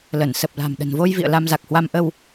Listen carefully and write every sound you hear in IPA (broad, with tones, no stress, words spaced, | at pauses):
lə˧˩n sə˨˩p̚la̤˨˩m ɗə̤˨˩nvo˧jvḭ˧˨ə̯ la˧mza˨˩k̚hwa˧m ʔə˧w